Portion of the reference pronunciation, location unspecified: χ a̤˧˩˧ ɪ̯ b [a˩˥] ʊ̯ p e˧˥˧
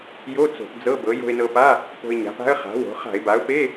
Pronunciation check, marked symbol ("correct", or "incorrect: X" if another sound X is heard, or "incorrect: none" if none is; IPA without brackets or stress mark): correct